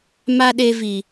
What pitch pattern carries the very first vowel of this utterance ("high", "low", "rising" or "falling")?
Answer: high